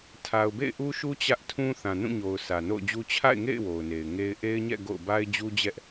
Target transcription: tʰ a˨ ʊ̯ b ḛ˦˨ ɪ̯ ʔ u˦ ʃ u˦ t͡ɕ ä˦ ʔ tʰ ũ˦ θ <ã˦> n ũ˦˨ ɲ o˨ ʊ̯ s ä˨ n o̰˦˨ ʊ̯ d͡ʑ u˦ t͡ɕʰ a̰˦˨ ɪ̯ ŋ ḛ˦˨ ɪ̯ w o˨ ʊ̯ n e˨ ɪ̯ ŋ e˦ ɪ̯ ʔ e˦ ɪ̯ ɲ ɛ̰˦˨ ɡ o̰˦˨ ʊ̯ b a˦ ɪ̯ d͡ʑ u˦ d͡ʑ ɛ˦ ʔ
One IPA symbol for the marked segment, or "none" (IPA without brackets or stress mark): ã˨